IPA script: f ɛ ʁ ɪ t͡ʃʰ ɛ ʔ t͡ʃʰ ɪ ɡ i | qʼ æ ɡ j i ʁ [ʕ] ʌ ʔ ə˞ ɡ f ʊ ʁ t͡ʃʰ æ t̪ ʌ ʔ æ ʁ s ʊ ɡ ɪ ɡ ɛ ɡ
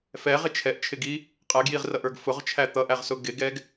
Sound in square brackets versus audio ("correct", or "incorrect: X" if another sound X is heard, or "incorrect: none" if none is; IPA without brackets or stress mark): incorrect: r